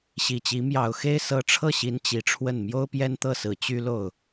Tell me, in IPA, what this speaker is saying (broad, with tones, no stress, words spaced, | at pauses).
ɕi˨˩t͡ɕi˧˥ mjɑ˨˩ʊ̯xe˥ɪ̯sɤ˧˥ ʈ͡ʂʰɤ˥˩ɕi˧˥n t͡ɕi˧˥ʈ͡ʂʰwə˥˩n mjo˥ʊ̯pjɛ˥nt̪ɤ˥˩sɹ̩˨˩ t͡ɕy˥lo˥˩ʊ̯